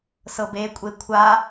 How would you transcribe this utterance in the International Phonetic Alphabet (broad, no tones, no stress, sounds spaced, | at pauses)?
s ɤ b e kʷʼ e kʷʰ a